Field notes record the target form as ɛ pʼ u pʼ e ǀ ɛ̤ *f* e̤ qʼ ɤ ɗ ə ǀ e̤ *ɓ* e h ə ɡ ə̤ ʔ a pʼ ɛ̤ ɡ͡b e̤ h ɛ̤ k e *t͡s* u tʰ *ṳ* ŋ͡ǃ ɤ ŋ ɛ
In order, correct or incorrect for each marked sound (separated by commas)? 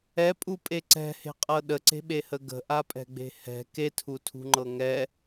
incorrect, correct, incorrect, correct